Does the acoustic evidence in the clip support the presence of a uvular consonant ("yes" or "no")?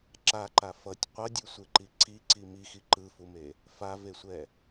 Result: yes